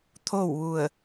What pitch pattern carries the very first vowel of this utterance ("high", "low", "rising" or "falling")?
falling